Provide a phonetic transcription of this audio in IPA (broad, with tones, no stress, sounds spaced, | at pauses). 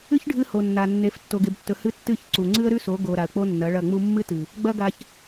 ɨ˦ ç ɖʱ ɨ˧ h o˨ nː a˨ nː e˨˦ f tː o˨ ɡ e˨ b tː ɵ˨ h ɨ˧ tː ɨ˦˨ ç ǀ u˨ ŋ͡ǀ ɨ˦ ə̯ ɾ ʉ˦ s o˨˦ ɡ o˨ ɾ a˨ ə̯ k͡p o˦ nː ɐ˨˦ ɭ ɐ˦˨ ŋ͡m u˧ mː ɨ˦ t ɨ˨ | ɡ͡b ɐ˦ ɡ a˧ ç